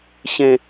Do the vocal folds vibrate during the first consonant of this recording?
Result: no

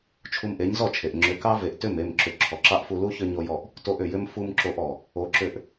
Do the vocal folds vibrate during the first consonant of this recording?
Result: no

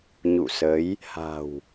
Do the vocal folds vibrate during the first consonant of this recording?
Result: yes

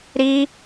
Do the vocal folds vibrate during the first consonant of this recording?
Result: yes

